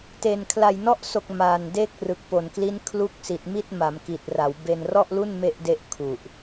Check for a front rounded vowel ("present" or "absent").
absent